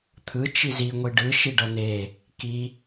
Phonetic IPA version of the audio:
t̪ʰ ɯ t͡ʃ i z i ŋʷ i ɖ ɯ ʃ i ɖ ʌ n̪ e | k i

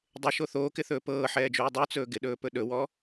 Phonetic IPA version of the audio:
dˤ ɪ ʃ o θ oː k ɪ θ ɵː p ɤː ħ ɛː d͡ʒ uː dˤ u t͡s ɵː ɡ ɪ ɗ ɵː p ɵ ɗ ɵ w ɔ

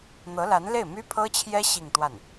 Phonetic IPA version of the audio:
n̪ ɤ˧˥ l a˧˥ n l e˥˩ ɪ̯ m y˥ pʰ ɤ˥ t͡ɕʰ j ɛ˥ ɕ i˥˧ ŋ t̪ w a˥˩ n

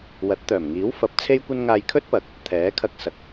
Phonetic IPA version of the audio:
w ɐ˨˥ t̚ t̪ œː˨˩ m ŋ iː˨˥ w f ɐ˨˥ p̚ t͡sʰ e˥ j kʷ ɐ˥ n ŋ aː˧ j kʰ ɵ˥ t̚ p ɐ˨˥ k̚ | t̪ʰ ɛː˨˥ kʰ ɐ˧ k̚ s ɐ˨˥ k̚

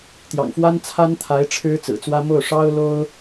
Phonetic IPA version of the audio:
t̪ j ɑ̰˨˩ ŋ f w a˥ n t͡sʰ a˥ n t̪ʰ a˧˥ ɪ̯ ʈ͡ʂʰ ɻ̩˥ t͡s ɹ̩˨˩ t͡s w ä˥ m o˥˩ ʊ̯ ʂ ɑ˥ ʊ̯ l o˥ ʊ̯

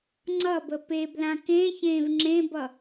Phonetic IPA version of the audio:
ŋ͡ǀ ʌ b ə p e b l ã k ẽ ç ẽː v ŋ͡ǁ ẽ b ʌ

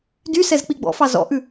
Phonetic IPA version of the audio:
d y s ɛ z k͡p i ɡ͡b ɔ̰ f ɑ z ɔ̰ ʔ ʉ

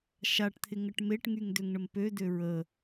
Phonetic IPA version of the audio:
ʃ a ʈ t̪ʰ ɪ ŋ ə ʈ m e ʈ ŋ y ŋ d ø ŋ ɳ ə m p ø d ø ɹ ə

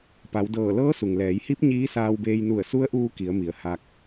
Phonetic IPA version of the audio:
p a˩˧ w d ɤː˧˩ l ɤː˧˥ s u˩ ŋ l ɛː˩˧ j h i˧˥ p̚ ɲ iː˧˥ s aː˧ w b eː˧ j n u˧˩ ə̯ s u˧˥ ə̯ ʔ uː˧ k i˩˧ ə̯ m i˩˧ ə̯ h a˧ k̚

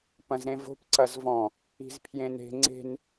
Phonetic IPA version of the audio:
p ɐ̃ z ɾ ẽ v o̤ p ǀ ɐ z v ɔ̃ | i̤ z pʰ j ẽ n e̤ ŋ͡ǀ e̤ n

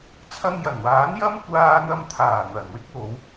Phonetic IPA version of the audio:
t͡sʰ ɐ˧ ŋ j ɐ˨˩ n w aː˨˥ n j ɐ˥ m kʷ aː˧ n̪ ɐ˧ m t̪ʰ aː˨˩ n̪ ɐ˨˩ n w ɪ˥ k̚ w o˨˧ w

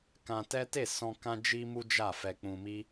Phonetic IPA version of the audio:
k ã˧ t ɛ˦ t e˦˨ s ɔ̃˧ k ã˦ d͡ʒ i˦ m u˦ d͡ʒ a˦˨ f ɛ˧ k͡p ũ˧ m i˦

